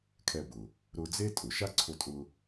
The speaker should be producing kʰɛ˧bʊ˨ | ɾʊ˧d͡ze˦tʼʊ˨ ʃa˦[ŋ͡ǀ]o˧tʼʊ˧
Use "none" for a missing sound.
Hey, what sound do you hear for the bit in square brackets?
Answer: ǀʰ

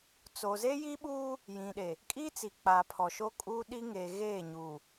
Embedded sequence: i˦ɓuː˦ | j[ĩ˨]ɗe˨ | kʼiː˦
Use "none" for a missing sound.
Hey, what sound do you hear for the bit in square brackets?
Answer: ĩ˨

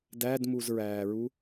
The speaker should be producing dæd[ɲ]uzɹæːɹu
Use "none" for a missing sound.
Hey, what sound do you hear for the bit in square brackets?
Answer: m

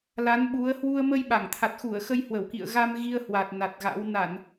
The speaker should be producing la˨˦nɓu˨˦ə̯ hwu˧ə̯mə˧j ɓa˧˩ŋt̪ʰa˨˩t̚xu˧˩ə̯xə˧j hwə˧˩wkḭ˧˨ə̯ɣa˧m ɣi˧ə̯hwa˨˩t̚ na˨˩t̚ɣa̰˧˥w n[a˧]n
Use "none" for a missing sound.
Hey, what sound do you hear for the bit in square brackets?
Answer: a˧˩˨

